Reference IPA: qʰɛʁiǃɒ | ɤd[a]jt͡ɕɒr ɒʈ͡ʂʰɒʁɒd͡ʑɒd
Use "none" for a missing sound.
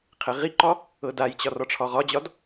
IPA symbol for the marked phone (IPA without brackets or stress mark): a